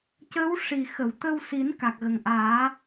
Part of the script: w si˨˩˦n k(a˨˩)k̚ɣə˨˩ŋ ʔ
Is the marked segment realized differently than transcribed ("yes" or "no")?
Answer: no